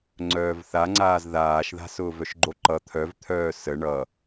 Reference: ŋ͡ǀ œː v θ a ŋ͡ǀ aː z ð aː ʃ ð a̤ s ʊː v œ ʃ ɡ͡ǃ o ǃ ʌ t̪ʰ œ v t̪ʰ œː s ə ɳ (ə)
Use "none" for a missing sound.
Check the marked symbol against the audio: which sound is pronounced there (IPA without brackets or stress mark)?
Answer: ʌ